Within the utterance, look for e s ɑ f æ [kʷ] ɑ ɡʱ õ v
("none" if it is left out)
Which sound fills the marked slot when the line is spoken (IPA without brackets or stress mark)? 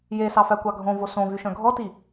kʷ